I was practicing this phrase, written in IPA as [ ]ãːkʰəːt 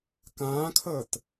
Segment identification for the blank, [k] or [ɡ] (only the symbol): k